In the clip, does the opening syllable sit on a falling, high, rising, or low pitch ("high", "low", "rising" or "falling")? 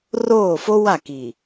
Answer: falling